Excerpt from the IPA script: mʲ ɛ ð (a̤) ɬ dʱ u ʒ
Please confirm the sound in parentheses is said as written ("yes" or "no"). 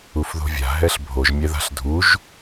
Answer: yes